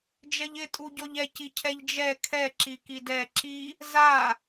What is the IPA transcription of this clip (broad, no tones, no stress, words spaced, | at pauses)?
d͡ʒɛʎɪtʼu ɟɔʎɛci cʰɛʎd͡ʒɛ kʰɛ ǁikidɛ ǁi | za